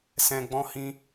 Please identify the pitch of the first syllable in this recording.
low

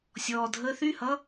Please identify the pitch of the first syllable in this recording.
low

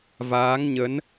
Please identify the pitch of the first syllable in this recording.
rising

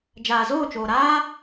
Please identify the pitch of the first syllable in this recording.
low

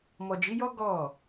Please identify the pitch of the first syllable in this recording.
low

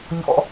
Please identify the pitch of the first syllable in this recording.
low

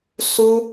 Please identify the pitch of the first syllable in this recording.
high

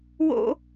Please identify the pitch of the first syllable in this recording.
high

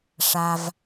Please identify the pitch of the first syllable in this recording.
low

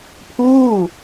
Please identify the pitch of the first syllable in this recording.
falling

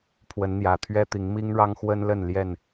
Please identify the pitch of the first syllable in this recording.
rising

